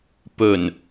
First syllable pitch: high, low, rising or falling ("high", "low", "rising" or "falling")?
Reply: low